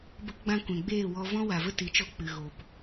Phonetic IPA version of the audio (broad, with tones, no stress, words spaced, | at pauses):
bə˧kɡ͡bã˧ kʷɛ̃˨ɡ͡beː˦˨wɔ˧vɔ̃˦ wa˨və˦ti˨˦t͡ʃɔ˧ k͡pɨ˨ ɣo˨p